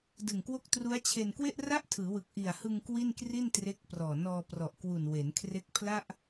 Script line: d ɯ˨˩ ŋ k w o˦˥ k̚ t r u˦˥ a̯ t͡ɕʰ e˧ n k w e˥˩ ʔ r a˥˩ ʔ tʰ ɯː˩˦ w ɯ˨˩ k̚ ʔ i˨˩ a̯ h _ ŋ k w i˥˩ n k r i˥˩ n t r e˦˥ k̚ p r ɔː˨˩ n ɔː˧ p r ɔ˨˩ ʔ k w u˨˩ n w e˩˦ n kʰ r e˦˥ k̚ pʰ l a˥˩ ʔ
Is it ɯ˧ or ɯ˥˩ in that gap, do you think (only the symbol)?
ɯ˧